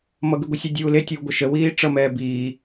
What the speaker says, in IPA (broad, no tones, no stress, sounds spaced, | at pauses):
m ʌ ɡ ɨ ɡʷ ɪ sʲ u dʲ uː l e tʲ uː ɡʷ ɐ ʃ ə w iː ʈ͡ʂ ʌ m ɛː b iː